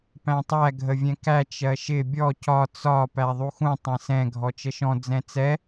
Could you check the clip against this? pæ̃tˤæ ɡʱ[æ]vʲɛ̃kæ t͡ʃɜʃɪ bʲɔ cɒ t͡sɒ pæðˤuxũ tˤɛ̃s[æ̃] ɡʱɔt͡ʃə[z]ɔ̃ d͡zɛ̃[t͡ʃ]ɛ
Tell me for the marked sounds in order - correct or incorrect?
incorrect: ə, incorrect: ɛ̃, incorrect: ʃ, incorrect: t͡s

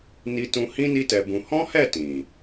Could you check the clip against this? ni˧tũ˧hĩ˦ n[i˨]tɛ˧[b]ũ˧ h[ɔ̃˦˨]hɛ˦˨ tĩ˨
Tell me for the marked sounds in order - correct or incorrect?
incorrect: i˦, correct, incorrect: ɔ̃˦

